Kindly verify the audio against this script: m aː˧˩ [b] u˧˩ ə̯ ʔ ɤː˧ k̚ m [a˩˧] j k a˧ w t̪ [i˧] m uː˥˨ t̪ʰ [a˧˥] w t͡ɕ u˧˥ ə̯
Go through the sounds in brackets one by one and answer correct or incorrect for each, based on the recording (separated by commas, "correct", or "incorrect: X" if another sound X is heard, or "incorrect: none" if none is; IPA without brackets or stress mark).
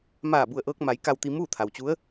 correct, correct, correct, incorrect: a˩